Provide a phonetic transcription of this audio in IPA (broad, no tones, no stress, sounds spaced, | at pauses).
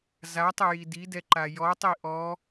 z a tˤ ɘ j i d i d ɛ ǃ a j ɔ tˤ i ʔ ɔ